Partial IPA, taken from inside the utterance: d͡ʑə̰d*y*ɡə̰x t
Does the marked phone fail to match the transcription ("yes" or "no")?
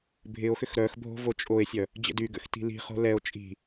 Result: no